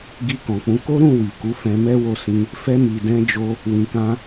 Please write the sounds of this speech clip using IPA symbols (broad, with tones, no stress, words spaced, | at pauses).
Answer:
ɡi˧kɔ̃˨k͡pũ˨˦ ko˦ɾũ˦˨ wi˨ku˨˦ fɛ̃˧mɛ˦wo˧sĩ˧ | fɛ˧mi˨dɛ̃˧d͡ʒo˧ | wĩ˨kã˧